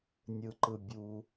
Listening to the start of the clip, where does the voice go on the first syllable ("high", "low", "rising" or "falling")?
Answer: low